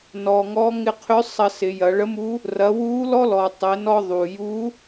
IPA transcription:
n ɔ˩ ŋ ɔ˧˥ ŋ ɪ˧ qʰ ʏ˧˥ sˤ ɐ˧ s ɪ˩˧ j ɐ˩˧ ɭ ə˧˥ m u˧˥ | r ɐ˩˧ w u˧˥ l ɔ˥ l ɔ˩ tˤ ɪ˩˧ n ɔ˧ ðˤ u˩ j u˧˥

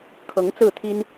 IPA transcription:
kʰ ɤ˧˥ ŋ t͡s ɹ̩˥˩ t̪ʰ i˥ n

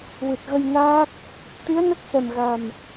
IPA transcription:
w ɨ˨˩ t̚ ɣ ə˧ j n aː˦˥ k̚ | t̪ i˧˥ ə̯ n ə˦˥ k̚ s ɛ˨˩ m ɣ a˨˩ m

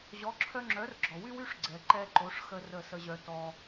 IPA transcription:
ʑ ɔ˩˥ ǁʰ œ˧ ŋ͡ǁ œ˩˥ r ɡ͡ǁ ɔ˩ w y˥ w y˥ ʂ ɡ͡ǀ ɛ˩ ǃ ɛ˧ ǃ o˩˥ ʂ x ə˧ r ə˥˩ s ə˧ ʑ œ˧ t ɔ˧

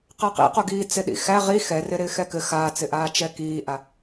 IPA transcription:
q ɛ q ḭ q o ɡ iː t͡s ɪ ɗ ḭ x æ ʁ i x ɛ r ɪ ɾ ɪː x ɛ k ɘ x aː t͡s ɪ ʔ aː t͡ʃ ɛ k iː ʔ a

